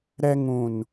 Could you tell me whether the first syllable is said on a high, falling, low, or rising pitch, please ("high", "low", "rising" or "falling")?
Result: high